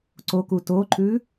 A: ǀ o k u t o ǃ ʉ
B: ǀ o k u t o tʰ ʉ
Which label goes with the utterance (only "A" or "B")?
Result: A